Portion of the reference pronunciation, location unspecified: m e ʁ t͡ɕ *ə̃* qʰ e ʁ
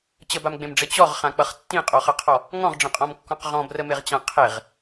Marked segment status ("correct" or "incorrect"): incorrect